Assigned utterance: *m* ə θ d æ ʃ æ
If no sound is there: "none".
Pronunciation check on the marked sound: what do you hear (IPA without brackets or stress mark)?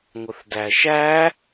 ŋʷ